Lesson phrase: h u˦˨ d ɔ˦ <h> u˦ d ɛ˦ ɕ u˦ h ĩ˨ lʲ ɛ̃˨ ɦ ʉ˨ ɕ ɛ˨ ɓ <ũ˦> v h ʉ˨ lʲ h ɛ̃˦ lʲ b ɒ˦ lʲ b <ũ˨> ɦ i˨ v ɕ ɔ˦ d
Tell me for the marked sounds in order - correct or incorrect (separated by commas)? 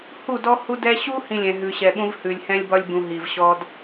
correct, correct, correct